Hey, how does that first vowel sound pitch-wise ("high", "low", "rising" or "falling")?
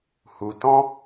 low